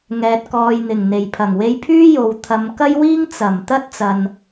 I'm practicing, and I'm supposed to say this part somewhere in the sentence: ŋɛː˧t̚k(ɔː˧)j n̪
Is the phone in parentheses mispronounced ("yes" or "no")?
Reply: no